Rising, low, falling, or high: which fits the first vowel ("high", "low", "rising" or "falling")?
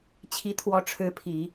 rising